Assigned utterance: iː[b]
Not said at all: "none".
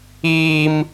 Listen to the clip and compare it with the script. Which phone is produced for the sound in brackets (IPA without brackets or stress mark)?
m